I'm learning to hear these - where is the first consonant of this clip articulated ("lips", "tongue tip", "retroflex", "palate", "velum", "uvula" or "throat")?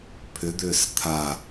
lips